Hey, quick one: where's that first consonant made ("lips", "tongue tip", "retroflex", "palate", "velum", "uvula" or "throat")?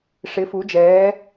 retroflex